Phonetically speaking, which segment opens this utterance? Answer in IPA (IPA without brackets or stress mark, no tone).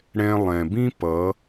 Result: ɽ